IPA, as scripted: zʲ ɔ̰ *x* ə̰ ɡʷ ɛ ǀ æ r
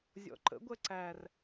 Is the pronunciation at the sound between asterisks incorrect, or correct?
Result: incorrect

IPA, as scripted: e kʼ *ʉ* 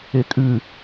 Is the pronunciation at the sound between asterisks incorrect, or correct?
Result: correct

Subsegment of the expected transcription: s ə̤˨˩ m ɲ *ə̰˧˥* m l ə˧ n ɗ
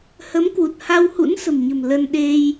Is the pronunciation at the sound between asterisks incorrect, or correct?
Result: incorrect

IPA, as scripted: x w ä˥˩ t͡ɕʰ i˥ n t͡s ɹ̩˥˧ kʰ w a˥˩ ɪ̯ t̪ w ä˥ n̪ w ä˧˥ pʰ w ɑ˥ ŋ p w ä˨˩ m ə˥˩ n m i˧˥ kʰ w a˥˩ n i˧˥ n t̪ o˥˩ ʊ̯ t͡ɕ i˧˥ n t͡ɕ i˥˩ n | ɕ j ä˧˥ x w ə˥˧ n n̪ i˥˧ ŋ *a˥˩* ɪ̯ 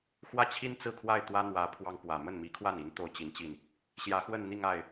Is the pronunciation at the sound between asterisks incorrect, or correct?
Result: correct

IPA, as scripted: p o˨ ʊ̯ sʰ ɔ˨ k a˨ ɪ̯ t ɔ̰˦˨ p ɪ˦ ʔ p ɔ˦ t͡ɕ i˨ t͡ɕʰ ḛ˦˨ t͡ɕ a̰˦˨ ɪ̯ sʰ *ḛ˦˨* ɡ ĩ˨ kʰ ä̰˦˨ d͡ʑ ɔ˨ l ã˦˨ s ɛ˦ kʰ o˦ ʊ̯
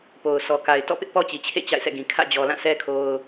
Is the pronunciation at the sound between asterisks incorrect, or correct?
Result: incorrect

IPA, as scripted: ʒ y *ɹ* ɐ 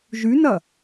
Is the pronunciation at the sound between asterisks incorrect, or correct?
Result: incorrect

